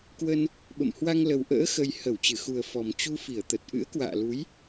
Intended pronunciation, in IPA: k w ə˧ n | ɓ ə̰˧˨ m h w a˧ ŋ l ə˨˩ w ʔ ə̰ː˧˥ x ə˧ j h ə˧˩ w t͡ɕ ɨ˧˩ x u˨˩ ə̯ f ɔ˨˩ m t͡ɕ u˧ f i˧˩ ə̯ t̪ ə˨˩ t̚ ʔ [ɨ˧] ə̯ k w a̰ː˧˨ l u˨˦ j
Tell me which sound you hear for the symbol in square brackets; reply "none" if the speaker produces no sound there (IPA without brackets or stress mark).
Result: ɨ̰˧˥